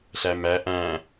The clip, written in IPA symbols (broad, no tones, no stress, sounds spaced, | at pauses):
ɬ æ m æ ʔ æ̃